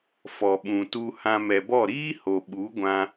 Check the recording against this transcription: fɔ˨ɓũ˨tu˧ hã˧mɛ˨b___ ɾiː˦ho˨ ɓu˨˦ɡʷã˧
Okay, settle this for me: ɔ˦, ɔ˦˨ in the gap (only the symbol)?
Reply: ɔ˦˨